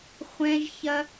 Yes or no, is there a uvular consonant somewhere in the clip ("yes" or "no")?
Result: yes